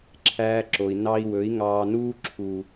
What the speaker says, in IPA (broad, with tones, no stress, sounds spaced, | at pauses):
ǁʰ æː˧ ǁ o˨ i̯ n ɑ˧ i̯ w ɵ˨˦ i̯ ŋ ɑː˧ n uː˧ ǁʰ u˨